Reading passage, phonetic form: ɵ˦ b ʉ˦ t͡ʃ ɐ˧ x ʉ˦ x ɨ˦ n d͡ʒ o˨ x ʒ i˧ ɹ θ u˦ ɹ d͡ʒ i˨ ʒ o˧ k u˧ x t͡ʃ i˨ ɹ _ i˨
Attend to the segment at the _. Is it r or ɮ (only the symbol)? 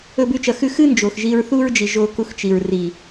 r